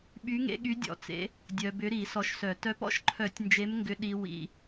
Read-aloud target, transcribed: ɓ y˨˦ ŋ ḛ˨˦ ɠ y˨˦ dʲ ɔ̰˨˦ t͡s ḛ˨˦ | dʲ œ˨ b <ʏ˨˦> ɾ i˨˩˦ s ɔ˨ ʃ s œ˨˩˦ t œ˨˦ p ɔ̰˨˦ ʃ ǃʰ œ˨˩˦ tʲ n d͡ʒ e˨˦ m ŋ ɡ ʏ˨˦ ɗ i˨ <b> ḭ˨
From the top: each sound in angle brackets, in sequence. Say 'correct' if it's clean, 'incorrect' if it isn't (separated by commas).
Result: correct, incorrect